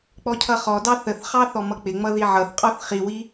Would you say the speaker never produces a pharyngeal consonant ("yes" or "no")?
no